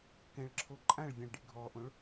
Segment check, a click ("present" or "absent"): present